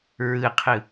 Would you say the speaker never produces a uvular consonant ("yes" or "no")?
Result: no